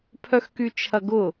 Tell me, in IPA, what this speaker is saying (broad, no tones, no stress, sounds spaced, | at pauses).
pʰ œ x k y t͡ʃʰ ɐ ɡ ʊ